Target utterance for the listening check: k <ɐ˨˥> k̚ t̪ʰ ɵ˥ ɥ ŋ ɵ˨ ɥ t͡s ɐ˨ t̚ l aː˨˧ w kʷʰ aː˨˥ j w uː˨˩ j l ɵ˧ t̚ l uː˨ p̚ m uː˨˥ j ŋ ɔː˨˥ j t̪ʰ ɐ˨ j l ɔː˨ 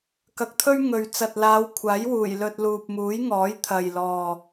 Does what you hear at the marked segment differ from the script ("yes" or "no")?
yes